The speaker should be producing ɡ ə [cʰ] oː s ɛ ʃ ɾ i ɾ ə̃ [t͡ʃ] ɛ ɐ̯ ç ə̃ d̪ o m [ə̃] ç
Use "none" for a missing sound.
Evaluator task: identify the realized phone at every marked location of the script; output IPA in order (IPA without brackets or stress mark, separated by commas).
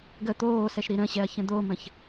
t̪, ɕ, ə̃